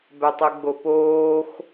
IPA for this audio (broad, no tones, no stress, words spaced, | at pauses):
bɛtˤɯɡ͡bopoːx